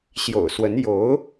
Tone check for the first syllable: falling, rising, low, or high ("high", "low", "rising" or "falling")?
low